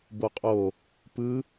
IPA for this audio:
boqʼo | pɯ

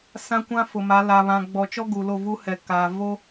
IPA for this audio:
sã˦kʷã˦ fʊ˨ma˨˦ la˨βã˨ɡ͡bɔ˨ t͡ʃɔ˦ ɡu˨lo˦˨vu˦hɛ˨ kaː˨ vo˦

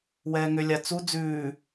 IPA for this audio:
wɛːŋʏlʲa t͡su d͡zʉː

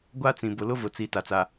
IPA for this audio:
ɡʷa˦t͡sĩ˨ bʊ˨lʊ˦vʊ˨t͡si˨ ta˨t͡sa˨

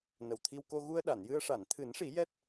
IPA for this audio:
nə˨˩wt̪ʰi˧wko˧ ɣu˧ə̯ɗa˨˩˨njɨ˧ə̯ ʂa˨˩˨nt̪ʰɨ˨˩˦nʂi˨˩˦ jɛ˦˥t̚

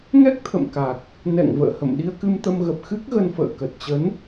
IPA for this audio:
ŋɛ˦˥k̚t̪ʰə̰˧˨m ka˨˩k̚ | nɛ̰˧˨ŋ və̰ː˧˨hə̰˧˨m ɗi˧ə̯kɨ˧mt̪ə˧mɣə˨˩p̚ xɨ˦˥k̚ɣə˧nfə̰ː˧˨ kə˨˩t̚t͡ɕə˨˦n

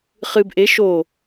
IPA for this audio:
χɨb ʔe ʃo

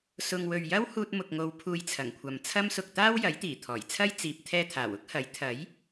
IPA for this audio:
sʊ˧ŋ wɵ˨ɥjɐ˥whuː˧t̚ mʊ˨k̚ŋo˨˧w pʰuː˧jt͡sʰɐ˨˩ŋkʷʰɐ˨m t͡sʰɐ˥msʊ˧k̚ t̪aː˥w jɐ˨˥jt̪iː˨˩t̪ʰɔː˨˩jt͡sʰɐ˥j t͡siː˨p̚ t̪ʰɛː˥t̪ʰaː˨˩w ʊ˥k̚hɐ˨˥j t̪ʰɐ˨˥j

